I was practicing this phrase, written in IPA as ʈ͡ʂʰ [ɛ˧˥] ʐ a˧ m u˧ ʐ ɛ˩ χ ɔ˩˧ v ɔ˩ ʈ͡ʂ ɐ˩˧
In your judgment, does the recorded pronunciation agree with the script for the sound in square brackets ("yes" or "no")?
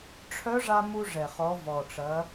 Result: no